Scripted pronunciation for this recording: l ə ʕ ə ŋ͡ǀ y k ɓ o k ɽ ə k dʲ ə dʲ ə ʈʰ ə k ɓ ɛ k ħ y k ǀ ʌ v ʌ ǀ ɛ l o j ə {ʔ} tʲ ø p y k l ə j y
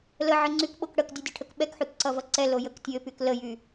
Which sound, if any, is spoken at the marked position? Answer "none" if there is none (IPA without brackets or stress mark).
k